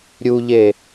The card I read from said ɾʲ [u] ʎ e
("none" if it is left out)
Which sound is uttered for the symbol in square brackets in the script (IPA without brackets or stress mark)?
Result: u